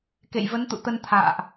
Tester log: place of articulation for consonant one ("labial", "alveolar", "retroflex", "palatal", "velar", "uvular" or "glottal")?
velar